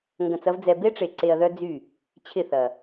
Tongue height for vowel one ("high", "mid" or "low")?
low